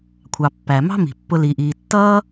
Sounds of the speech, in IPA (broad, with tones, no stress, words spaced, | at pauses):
kʷʰɑ˩pːæ˩ mɑ̤˥mi̤˩ pːʊ˨li˩ʔiː˩ tːʌː˦